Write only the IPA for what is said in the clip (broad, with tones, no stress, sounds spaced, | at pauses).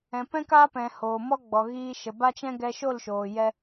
ɛ̃˨ p ɛ̃˦ k aː˦ p ɛ̃˨ h oː˨ m ɔ˦ ɡ͡b ɔ˨ ɣ iː˧ ʃ ə˨ b a˦ t͡ʃ ɛ̃˦ ɡ ɛ˧ ʃ o˦˨ l ʃ oː˨ j ɛ˧